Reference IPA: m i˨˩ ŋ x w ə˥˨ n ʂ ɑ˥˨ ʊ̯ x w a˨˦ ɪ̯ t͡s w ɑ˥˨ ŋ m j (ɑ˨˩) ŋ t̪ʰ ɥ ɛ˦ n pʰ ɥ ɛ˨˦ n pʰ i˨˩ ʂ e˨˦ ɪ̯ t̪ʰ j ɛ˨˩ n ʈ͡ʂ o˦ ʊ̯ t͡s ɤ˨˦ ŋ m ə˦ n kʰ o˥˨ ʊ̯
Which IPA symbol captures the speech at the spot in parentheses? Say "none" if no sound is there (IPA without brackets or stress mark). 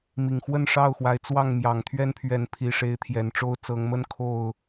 ɑ˨˩